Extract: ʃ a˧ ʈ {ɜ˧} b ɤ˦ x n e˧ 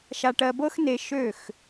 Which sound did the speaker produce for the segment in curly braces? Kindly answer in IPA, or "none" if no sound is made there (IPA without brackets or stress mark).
ɜ˧